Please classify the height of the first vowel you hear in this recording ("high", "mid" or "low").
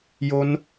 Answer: mid